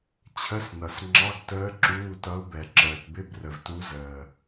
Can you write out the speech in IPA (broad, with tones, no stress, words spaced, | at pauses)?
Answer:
t͡ɕʰə˧˥˧snʌ˨sŋ͡ǁɑ˧˥˧ɡtəː˧˥ ǁuː˧˥˧tʌ˧˥ʊ̯ bɛ˨ǁəː˨tbɪ˧˥˧brə˨v tu˧˥zəː˨